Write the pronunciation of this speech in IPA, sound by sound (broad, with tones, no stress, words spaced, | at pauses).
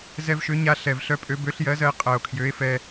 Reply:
zɛ˧vʃø˨˥ ɲa˧ ɬɛ˨˩vɬœ˧pʼø˨˥ bø˨˥ɬ jɜ˨˥zɜ˧e̯ qʼɜ˨˩o̯kʰjø˨˥e̯ fɛ˧